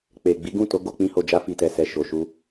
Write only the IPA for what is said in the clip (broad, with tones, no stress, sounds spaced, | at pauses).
k͡p e˨ ɡ͡b i˨˦ ɡ ũ˦˨ t o˨˦ ɡ o˦˨ k͡p ĩ˧ h o˨ d͡ʒ a˧ f i˨ t ɛ˨ s ɛ˨ ʃ o˨ ʃ u˧